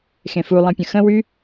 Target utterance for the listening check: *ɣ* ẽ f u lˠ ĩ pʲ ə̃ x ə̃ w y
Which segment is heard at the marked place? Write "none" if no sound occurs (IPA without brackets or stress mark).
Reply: x